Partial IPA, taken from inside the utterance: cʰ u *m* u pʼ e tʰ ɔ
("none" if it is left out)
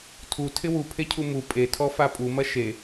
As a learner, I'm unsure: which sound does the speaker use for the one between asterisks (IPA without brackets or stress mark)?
m